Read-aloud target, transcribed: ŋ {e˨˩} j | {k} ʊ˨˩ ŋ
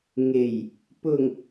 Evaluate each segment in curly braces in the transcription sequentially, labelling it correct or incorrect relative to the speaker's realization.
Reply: correct, incorrect: p

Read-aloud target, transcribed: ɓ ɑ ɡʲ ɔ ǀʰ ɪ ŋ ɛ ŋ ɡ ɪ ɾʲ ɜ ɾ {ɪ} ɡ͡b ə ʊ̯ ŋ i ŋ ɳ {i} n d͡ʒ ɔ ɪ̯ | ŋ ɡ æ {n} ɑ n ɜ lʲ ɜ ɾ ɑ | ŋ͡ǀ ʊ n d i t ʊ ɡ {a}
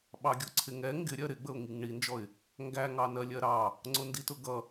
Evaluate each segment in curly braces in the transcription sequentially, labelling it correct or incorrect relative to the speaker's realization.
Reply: correct, correct, incorrect: ŋ, incorrect: ʌ

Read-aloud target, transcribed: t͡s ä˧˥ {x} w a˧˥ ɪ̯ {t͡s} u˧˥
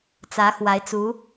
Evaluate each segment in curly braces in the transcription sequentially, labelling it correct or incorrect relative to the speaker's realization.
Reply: correct, correct

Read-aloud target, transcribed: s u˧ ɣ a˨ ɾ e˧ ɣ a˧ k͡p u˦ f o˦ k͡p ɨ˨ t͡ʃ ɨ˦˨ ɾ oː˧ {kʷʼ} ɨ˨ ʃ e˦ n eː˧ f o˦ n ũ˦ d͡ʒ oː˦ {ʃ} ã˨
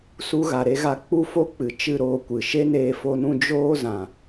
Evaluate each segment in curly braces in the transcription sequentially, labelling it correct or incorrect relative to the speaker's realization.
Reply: incorrect: kʷ, incorrect: z

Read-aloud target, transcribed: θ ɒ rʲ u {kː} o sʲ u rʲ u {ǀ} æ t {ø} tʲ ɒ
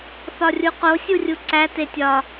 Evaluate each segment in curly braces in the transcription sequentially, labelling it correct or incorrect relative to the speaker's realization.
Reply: incorrect: q, correct, incorrect: e

